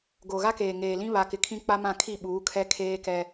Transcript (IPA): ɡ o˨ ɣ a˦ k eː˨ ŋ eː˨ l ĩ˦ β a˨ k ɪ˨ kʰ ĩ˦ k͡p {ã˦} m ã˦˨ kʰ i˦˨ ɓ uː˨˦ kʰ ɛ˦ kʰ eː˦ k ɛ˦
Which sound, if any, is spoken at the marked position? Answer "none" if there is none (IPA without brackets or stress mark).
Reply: a˦